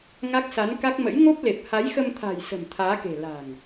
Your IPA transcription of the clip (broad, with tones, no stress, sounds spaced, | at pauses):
ŋ a˦˥ k̚ s a˨˦ n k a˦˥ k̚ m ə̰˧˥ j ŋ o˦˥ p̚ l e˨˩ p̚ h a˨˦ j x ə˧ m t̪ʰ a̤˨˩ j s ə̤˨˩ m t̪ʰ aː˨˦ k e̤˨˩ l a̤˨˩ ŋ